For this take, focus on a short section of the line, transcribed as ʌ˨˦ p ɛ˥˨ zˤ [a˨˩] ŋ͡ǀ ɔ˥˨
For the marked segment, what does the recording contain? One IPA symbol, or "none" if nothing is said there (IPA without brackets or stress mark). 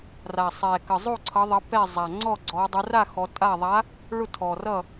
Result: a˨˩